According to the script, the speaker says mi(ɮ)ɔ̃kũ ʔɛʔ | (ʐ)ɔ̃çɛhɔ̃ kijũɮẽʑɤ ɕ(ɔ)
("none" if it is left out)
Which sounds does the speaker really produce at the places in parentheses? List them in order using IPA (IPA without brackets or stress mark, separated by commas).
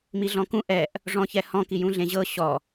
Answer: ɮ, ʐ, ɔ